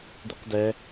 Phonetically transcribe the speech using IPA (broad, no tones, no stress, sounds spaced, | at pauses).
d̪ i q d ɛ